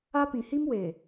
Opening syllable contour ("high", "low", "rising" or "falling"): high